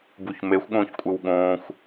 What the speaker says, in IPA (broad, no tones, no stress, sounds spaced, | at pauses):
b u ç m e xʷ ɠ õː ç kʷʼ ɨ w ɠ õː xʷ